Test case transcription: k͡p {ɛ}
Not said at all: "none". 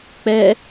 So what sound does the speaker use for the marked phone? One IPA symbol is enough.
ɛ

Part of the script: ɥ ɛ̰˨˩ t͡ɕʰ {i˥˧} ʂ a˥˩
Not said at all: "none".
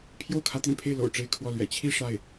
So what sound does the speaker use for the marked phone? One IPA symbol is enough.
i˥˧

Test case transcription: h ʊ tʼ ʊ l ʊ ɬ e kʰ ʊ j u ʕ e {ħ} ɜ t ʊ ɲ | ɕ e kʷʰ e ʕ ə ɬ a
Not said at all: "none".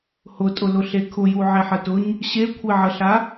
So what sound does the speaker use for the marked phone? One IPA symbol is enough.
ħ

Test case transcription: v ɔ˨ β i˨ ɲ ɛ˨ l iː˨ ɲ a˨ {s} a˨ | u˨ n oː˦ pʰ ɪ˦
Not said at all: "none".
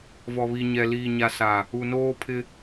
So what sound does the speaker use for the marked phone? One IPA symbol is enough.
s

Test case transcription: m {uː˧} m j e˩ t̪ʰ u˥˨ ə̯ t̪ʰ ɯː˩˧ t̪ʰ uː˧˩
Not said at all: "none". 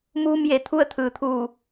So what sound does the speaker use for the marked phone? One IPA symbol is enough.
uː˧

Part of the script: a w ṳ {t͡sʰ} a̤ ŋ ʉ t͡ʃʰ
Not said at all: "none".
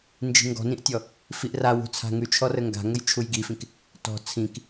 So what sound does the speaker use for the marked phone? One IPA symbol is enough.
t͡sʰ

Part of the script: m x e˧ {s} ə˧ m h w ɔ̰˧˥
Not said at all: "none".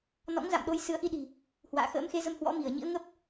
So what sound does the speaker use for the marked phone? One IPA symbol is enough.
z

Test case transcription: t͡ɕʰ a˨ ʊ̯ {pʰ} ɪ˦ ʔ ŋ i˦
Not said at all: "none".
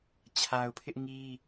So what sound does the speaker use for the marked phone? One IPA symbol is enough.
pʰ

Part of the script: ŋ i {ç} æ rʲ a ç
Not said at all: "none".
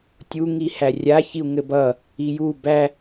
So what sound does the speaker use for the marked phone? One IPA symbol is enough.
h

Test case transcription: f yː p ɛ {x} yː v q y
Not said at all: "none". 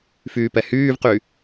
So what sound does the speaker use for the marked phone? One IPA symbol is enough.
h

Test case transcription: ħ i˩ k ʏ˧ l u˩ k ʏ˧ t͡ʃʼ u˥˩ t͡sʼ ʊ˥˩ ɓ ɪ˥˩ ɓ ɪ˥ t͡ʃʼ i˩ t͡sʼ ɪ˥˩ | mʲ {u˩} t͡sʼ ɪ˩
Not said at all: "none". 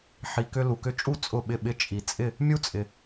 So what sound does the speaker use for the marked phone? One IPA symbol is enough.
u˥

